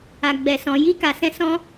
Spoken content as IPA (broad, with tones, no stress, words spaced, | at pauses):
a˨ɡ͡bɛ˨sɔ̃˨ ji˧ka˨sɛ̃˧ sɔ̃˦